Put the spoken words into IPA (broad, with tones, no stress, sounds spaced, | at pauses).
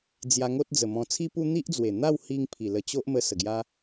d͡z j a˧ ŋ o˦ t̚ d͡z ə˨˩ m ɔ̃˧ t͡sʰ i˦ p u˦ n̪ i˦ ʔ d͡z w e˨˩ n̪ a˥˧ w h i˧ ŋ pʰ i˨˩ l ə˧ t͡ɕ o˦ ʔ m ə˧ s ə˨˩ ɡ j a˦